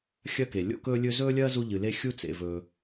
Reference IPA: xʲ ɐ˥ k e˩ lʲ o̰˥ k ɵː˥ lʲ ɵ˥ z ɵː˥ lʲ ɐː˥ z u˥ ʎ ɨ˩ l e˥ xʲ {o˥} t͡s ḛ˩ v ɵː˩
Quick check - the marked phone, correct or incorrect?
incorrect